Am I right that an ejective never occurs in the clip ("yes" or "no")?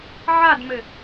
yes